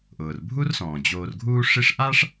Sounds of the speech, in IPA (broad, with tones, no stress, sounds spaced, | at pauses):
ʔ ʊː˩ r bʱ u˥ r s ɔ̃ː˩ d͡ʑ oː˨ r ɡʱ uː˦ ʂ i˦ ʂ ʔ a˥ ʂ